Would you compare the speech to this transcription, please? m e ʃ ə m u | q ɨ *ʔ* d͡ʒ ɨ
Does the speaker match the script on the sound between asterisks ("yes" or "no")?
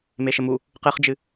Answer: no